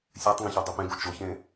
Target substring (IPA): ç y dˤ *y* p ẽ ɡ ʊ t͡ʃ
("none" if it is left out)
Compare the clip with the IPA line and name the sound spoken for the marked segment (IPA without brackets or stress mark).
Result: y